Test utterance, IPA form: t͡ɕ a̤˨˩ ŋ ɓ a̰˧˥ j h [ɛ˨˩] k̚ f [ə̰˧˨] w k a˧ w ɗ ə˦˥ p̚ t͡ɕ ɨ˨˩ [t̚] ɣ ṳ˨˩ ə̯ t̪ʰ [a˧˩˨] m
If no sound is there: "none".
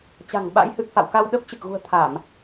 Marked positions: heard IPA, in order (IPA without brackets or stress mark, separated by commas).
ɨ˨˩, a̰˧˨, k̚, a˧˩˨